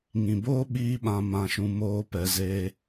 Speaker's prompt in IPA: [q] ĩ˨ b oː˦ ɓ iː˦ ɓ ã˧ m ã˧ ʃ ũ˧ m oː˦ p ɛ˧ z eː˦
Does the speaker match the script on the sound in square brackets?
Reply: no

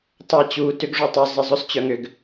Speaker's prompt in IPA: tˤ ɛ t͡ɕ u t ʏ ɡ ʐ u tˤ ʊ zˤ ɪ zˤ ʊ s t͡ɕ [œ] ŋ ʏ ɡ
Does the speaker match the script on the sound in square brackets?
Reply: yes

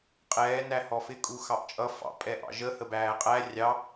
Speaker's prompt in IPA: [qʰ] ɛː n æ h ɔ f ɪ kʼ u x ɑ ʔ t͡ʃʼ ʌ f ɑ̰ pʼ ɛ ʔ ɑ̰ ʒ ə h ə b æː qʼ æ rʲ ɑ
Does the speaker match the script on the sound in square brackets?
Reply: no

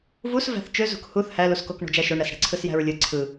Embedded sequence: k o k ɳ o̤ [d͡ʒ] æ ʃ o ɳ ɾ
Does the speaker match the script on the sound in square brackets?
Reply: yes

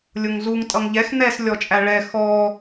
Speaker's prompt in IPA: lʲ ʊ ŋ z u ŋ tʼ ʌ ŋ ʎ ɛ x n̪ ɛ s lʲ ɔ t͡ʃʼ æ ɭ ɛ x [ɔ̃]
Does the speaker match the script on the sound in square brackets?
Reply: no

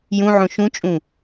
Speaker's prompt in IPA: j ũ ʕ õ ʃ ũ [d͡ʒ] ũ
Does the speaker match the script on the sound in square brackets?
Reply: no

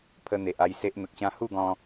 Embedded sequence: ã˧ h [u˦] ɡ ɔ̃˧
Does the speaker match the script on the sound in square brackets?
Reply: no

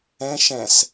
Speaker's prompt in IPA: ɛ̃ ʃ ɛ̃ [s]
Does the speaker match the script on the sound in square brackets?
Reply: yes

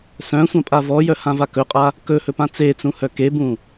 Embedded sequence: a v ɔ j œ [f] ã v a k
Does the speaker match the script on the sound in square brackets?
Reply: no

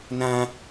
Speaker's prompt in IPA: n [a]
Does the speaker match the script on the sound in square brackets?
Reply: no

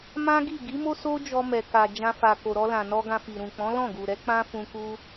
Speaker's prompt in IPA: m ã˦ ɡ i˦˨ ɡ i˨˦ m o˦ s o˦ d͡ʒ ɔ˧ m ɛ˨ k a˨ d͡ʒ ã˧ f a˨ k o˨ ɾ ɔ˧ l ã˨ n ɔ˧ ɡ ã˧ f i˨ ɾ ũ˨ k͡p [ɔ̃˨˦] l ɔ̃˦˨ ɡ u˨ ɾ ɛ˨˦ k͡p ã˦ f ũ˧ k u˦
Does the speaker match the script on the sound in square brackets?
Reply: yes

